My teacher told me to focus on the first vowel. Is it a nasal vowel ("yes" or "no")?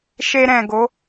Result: no